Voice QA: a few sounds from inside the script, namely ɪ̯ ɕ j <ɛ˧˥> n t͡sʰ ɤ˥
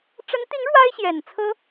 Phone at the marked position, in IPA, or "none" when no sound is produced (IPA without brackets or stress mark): ɛ˨˩